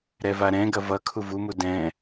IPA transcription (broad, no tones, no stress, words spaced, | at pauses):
ɾɛvaɾɛ̃ɡɐ vʌ kʰuvumu dɛ̃